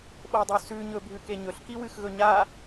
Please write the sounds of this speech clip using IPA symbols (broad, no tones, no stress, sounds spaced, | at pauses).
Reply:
ɓ o dˤ u s ʉ ɲ ɵ bʱ ʉ k e ɲ ɵ ɬ k i w ɨ x ɣ ɵ ɲ a